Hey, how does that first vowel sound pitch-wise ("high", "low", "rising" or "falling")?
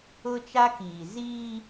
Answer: high